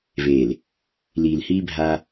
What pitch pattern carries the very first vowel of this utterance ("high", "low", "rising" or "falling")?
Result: low